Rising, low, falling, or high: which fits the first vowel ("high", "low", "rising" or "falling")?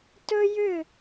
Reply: high